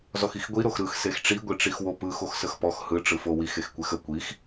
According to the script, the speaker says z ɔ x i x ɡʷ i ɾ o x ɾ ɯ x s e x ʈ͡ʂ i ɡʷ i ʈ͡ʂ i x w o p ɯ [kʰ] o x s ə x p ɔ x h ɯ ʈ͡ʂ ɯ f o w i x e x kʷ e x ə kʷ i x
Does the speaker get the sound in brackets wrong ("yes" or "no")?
yes